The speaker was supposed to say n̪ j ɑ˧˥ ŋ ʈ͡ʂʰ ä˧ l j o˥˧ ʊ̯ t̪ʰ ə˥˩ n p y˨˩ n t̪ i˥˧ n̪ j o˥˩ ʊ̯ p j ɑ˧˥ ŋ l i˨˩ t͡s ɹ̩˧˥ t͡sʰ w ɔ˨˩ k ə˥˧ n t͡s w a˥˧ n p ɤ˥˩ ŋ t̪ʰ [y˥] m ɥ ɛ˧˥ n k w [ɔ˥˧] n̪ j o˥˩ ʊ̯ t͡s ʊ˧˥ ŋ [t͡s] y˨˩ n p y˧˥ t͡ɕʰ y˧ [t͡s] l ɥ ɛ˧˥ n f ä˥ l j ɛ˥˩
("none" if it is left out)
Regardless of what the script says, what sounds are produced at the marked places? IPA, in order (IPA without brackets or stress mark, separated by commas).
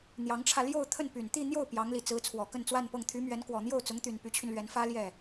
y˧˥, ɔ˨˩, t̪, n